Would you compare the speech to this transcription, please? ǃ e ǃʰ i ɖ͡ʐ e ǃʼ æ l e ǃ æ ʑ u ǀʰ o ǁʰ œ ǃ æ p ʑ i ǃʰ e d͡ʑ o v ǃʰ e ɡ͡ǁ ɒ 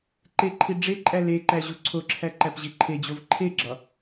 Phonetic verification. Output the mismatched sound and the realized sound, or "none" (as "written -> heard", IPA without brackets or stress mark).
œ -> æ